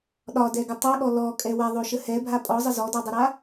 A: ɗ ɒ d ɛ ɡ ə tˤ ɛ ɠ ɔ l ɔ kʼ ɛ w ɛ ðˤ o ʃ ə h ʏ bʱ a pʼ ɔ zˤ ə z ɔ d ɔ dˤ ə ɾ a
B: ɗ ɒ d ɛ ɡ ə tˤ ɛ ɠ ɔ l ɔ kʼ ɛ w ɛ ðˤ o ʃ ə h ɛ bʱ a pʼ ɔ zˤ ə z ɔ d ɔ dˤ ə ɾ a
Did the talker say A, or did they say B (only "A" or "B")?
B